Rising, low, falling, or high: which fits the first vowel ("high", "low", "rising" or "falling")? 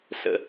high